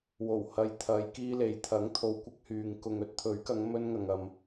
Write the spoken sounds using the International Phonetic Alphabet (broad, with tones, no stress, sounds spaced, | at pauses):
w o˨˩ w h ɐ˨ j t̪ʰ ɐ˨˧ j k iː˧ l e˨ j t̪ʰ ɐ˨˥ ŋ t̪ʰ o˨ w kʷ ɐ˧ k̚ h yː˨ ŋ k ʊ˨ ŋ ɵ˨ t̚ t̪ʰ ɵ˨˥ ɥ k ɐ˨˧ ŋ m ɵ˧ n ŋ ɐ˨ ŋ ɐ˨ m